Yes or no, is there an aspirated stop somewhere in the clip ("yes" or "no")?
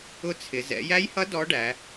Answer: yes